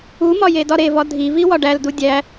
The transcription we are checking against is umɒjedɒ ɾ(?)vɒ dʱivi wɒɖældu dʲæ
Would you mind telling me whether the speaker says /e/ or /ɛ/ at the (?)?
e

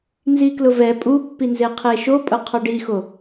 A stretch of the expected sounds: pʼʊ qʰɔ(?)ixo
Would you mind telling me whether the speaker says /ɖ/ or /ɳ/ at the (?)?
ɖ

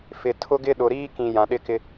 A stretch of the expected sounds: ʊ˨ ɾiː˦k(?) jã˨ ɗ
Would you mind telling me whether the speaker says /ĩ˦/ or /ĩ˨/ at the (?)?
ĩ˨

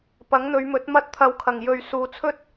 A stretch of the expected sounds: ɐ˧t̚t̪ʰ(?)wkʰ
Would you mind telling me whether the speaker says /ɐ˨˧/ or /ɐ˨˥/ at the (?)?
ɐ˨˧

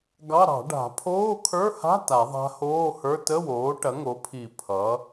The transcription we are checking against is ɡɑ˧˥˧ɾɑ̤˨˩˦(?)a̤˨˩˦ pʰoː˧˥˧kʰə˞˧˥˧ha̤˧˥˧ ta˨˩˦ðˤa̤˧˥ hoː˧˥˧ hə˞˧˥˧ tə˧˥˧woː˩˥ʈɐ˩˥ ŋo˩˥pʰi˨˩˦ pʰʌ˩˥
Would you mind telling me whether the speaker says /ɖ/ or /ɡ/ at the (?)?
ɖ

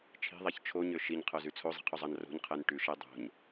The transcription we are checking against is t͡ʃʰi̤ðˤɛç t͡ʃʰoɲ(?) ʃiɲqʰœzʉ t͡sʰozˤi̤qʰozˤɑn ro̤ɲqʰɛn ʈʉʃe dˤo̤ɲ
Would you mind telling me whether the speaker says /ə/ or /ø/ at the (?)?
ø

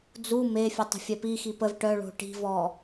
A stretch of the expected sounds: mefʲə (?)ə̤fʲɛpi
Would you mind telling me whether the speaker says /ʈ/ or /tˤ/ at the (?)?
tˤ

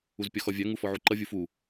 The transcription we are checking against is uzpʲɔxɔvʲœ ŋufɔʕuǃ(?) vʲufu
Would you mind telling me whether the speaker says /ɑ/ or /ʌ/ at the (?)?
ʌ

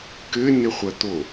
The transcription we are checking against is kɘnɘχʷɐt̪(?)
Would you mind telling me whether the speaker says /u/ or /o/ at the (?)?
o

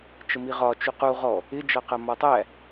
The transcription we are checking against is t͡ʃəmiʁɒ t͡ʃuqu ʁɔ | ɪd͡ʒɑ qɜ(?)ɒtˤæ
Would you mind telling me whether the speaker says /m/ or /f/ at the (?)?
m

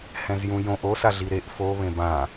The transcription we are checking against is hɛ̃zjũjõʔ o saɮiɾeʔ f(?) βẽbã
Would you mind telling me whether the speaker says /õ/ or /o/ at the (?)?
o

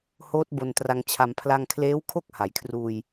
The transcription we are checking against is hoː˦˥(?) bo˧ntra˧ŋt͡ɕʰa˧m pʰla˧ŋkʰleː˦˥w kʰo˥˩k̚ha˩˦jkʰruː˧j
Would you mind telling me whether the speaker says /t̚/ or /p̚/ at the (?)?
t̚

